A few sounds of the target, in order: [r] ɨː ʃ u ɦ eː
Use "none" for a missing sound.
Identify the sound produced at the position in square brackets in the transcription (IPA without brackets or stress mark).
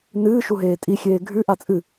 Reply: n